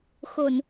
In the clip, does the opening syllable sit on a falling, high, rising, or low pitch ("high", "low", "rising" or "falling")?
low